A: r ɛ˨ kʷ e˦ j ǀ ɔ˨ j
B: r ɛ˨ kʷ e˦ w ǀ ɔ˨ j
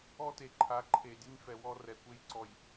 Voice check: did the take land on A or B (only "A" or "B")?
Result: A